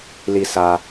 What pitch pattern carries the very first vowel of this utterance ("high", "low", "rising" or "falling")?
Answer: low